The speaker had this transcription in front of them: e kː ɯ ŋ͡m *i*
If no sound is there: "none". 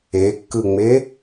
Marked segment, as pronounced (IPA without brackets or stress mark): e